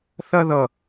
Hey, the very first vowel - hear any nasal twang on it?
no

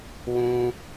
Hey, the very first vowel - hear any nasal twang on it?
yes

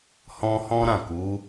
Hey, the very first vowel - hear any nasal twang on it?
yes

